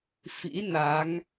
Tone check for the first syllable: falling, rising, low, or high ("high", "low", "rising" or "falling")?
rising